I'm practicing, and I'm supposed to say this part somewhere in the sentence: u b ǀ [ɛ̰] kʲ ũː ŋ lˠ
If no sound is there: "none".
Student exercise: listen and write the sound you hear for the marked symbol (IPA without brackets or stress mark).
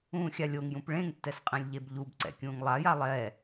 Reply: ɛ̰